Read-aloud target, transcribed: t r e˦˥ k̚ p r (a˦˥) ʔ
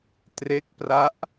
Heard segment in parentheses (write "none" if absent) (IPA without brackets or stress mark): a˦˥